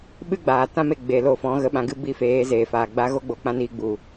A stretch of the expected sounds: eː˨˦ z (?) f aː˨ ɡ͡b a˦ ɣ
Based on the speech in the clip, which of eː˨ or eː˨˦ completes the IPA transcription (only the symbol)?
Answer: eː˨